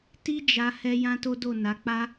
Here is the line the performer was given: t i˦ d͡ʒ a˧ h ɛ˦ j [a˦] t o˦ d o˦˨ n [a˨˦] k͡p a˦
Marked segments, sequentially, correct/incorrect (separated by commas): incorrect, correct